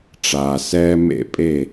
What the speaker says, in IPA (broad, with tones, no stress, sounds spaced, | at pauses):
ʈ͡ʂ aː˩ s ɛː˥ m ḛ˥ pʼ e˥˩